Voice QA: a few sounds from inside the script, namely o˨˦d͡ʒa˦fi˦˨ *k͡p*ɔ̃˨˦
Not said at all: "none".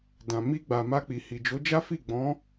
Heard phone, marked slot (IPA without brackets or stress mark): ɡ͡b